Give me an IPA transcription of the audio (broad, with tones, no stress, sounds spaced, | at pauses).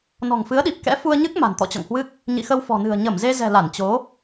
n ɔ̤˨˩ ŋ f ɨ˨˦ ə̯ ɗ i˨˩ p̚ k ɛ̰˧˥ f u˧ ə̯ ɲ ɨ˦˥ k̚ m a̤˨˩ n t̪ ɔ̰˧˨ t͡ɕ ɔ̰˧˨ ŋ h w ɨ˦˥ k̚ | ɲ ḭ˧˨ x ə˧ w f ɔ̤˨˩ n ɨ̤˨˩ ə̯ ɲ ə˧˩ m z e˧ z ɛ̤˨˩ l a˧˩ n t͡ɕ o˨˦